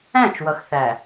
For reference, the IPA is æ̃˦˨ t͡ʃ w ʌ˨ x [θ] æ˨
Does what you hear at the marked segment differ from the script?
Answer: no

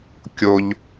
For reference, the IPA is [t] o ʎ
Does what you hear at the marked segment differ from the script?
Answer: yes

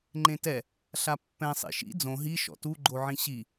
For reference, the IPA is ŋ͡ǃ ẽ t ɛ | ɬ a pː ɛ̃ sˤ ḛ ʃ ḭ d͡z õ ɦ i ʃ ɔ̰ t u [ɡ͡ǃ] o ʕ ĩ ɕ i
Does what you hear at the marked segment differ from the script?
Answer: no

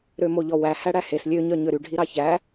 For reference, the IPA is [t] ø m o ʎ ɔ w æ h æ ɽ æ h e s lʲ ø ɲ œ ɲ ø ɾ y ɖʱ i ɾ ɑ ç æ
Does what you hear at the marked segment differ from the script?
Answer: yes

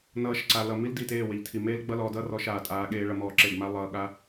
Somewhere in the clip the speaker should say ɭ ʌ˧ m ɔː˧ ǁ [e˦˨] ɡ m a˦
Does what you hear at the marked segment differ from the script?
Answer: no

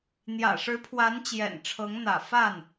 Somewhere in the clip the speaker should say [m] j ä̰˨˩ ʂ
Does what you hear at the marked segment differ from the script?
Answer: yes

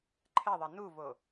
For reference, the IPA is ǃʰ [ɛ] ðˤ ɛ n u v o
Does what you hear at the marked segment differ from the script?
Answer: no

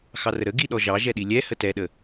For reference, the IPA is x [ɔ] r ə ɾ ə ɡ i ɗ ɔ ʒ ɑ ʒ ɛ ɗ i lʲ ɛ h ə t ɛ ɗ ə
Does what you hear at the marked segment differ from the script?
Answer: yes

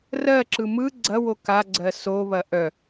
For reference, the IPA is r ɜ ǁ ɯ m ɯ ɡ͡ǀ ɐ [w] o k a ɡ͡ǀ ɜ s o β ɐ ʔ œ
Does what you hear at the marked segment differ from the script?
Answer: no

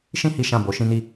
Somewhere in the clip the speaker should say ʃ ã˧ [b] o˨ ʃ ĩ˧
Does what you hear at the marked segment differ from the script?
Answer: no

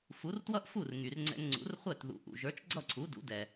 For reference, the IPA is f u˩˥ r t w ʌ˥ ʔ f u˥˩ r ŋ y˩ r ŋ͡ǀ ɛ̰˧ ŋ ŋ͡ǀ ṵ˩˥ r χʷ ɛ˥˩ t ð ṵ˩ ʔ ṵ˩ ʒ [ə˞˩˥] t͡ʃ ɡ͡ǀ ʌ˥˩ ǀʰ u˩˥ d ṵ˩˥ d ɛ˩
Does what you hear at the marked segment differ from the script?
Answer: no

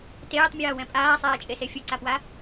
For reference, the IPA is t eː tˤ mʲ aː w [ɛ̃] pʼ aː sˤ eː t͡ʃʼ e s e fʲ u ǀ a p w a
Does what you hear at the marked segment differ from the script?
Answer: no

